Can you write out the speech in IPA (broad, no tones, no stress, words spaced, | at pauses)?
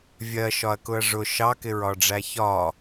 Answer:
vʲɜʃɒɐ̯kʊɐ̯ ʐʊ ʃɑkɪɹɒ ɖ͡ʐæçɒ